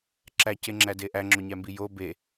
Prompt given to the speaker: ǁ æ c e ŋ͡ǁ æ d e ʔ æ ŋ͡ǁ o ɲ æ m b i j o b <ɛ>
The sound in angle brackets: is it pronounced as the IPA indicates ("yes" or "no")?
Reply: no